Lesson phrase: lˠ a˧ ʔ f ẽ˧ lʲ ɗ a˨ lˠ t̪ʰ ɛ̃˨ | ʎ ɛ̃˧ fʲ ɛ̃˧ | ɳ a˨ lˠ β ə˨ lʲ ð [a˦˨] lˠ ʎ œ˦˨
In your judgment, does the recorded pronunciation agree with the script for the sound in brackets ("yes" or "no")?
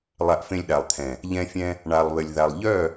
no